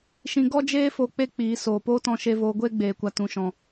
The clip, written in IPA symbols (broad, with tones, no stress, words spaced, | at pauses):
ʃĩ˦ ɡɔ˦d͡ʒeː˦fo˧ k͡pe˦k͡piː˨˦ soː˨poː˦tɔ̃˧ʃe˧ voː˧ɡʷeː˦ɡ͡beː˨kʷa˨ tũ˨ʃɔ̃˨